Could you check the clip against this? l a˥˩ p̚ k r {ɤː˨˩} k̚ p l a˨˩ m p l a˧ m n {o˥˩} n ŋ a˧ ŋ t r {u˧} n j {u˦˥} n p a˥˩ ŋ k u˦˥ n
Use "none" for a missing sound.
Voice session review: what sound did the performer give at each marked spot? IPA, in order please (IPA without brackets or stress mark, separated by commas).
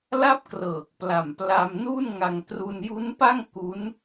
ɤː˨˩, u˥˩, u˧, u˦˥